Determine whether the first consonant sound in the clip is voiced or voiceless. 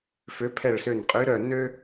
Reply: voiceless